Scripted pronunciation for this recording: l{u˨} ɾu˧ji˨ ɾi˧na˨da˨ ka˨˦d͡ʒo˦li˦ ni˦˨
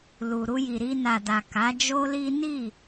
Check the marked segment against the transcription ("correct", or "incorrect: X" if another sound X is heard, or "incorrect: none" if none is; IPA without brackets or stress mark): correct